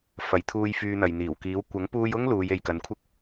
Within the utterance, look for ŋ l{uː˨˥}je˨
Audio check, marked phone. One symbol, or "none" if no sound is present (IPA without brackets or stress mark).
uː˨˧